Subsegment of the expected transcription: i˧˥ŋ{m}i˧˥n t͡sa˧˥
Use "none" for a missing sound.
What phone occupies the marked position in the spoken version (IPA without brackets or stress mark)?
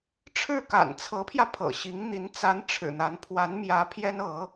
n̪